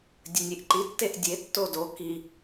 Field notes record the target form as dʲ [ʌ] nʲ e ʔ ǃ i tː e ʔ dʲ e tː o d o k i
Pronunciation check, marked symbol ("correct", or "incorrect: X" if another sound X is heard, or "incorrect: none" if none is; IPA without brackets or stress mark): incorrect: ə